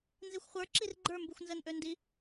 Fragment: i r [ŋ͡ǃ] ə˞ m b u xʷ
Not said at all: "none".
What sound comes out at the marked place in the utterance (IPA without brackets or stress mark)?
ɡ͡ǃ